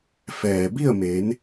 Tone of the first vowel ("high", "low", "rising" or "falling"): low